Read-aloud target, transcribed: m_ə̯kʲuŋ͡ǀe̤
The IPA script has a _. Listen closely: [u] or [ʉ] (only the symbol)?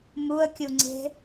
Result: u